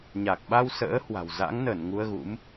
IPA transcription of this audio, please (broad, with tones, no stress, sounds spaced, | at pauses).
ɲ a˨˩ k̚ ɓ a˧ w s ə̰ː˧˥ h w a̤˨˩ w z a̰˧˥ ŋ n ə˧˩ n ŋ u˧ ə̯ ɣ ṵ˧˥ m